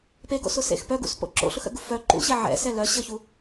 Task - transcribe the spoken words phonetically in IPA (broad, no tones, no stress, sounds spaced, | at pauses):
p e ɡ o̰ s ʊ s ḛ x p œ ɡ ṵ s p o̰ ǁ o̰ ɬ ʊ x ə̰ ɡ u f œ ǃ ṵ ɕ e ʕ ɛ̰ s ɛ l œ ɕ ə ç u